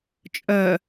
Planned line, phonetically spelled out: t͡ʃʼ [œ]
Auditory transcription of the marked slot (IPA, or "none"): œ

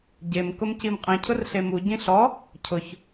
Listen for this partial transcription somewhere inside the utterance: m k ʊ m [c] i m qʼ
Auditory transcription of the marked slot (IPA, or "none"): c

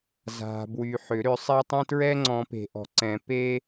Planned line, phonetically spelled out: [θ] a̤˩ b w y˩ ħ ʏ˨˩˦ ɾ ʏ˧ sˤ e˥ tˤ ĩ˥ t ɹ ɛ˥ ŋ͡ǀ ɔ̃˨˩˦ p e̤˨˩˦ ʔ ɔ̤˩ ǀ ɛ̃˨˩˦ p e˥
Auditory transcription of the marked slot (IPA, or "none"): z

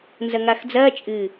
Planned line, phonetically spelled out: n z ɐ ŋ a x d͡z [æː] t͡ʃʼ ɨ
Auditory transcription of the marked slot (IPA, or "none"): ɐː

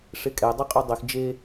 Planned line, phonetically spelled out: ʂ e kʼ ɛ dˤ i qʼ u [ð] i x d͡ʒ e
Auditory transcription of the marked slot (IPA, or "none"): dˤ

